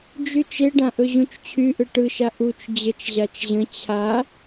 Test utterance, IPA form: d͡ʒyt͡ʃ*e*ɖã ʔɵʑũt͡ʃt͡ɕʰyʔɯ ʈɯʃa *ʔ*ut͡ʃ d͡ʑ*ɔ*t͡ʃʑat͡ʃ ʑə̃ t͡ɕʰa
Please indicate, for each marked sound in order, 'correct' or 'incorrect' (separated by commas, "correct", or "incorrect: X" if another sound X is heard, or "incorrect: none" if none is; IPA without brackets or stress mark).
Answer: correct, correct, incorrect: ə